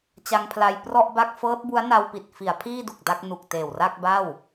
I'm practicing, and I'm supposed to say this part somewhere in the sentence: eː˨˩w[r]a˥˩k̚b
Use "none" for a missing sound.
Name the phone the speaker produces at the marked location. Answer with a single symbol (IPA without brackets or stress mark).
r